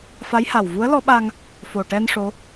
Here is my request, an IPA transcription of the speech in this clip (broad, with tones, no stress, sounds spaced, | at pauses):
f a˧˥ j h a˨˩ w v u˧˥ ə̯ l ɔ˧˥ ɓ a˧ ŋ | f o˨˩ ʈ ɛ˧ n ʂ o˧˥